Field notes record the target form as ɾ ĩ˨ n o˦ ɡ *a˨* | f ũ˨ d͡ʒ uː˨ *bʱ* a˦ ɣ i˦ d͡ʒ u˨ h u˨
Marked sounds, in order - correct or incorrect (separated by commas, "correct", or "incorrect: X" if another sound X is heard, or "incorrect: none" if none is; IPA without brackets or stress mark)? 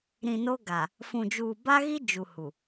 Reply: correct, incorrect: b